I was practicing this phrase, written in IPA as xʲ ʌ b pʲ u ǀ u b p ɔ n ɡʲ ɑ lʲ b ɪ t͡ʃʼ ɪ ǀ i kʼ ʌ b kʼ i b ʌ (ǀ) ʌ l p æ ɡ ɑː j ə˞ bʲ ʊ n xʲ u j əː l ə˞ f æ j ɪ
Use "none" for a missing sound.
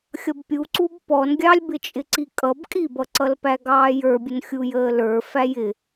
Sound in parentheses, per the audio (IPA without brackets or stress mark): ǀ